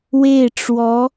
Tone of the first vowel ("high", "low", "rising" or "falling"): falling